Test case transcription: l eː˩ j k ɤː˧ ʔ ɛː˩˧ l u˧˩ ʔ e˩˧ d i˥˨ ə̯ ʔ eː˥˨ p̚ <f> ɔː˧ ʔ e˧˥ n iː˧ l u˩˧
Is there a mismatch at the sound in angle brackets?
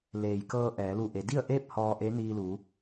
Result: yes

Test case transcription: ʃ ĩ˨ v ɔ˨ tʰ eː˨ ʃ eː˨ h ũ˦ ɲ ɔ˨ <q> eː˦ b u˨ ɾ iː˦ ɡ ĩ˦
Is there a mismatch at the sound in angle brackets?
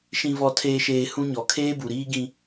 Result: yes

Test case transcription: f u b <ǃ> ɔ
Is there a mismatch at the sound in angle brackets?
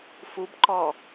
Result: no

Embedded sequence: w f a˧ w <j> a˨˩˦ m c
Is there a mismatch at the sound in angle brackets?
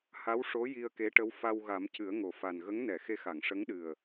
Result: yes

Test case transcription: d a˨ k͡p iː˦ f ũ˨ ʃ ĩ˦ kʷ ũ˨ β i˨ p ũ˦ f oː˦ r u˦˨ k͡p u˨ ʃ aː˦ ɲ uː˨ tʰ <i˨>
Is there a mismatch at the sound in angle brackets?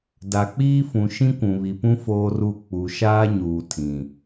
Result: yes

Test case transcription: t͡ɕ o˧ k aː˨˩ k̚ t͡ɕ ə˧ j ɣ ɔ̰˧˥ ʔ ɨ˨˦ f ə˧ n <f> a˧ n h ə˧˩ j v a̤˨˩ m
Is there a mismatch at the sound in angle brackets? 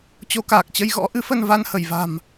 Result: yes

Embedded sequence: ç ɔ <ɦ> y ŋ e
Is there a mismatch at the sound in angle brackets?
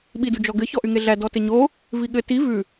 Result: yes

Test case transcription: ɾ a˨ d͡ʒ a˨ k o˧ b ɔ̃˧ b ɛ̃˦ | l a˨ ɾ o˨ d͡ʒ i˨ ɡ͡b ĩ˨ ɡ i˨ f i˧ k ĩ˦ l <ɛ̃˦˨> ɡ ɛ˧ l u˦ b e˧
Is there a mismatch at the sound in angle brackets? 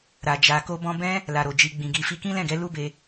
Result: no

